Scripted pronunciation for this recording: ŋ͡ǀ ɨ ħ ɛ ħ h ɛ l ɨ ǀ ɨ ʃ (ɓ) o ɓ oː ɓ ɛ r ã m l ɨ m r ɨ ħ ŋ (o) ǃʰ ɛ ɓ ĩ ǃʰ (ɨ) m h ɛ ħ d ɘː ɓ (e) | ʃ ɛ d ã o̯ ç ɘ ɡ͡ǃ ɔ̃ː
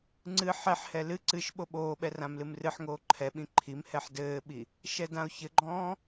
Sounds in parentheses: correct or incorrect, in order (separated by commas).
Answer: correct, incorrect, incorrect, incorrect